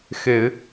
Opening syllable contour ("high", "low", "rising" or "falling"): low